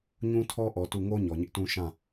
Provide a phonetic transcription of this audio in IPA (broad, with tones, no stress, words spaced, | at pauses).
ɲũ˦tʰɔ˦ʔɔ˨ tu˦˨ ŋo˦ ɲɔ˨ɲɪ˦ʔtũ˦ ʃã˦˨